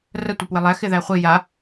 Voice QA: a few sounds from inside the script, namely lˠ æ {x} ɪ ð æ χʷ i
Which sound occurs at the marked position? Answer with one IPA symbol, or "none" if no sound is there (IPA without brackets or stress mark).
x